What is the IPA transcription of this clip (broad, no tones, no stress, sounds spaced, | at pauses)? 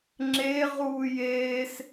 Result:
ŋ͡ǁ e ʁ uː j eː s